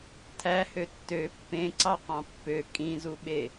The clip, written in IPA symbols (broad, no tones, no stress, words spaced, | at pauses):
tʰæhø tːø pːẽǀɑqɑ̃ pːø kʼĩzuɓe